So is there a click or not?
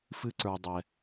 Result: yes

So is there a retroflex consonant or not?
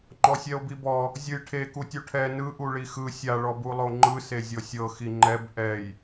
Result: yes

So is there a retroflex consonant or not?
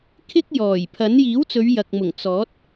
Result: no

